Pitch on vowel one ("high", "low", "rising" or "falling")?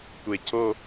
low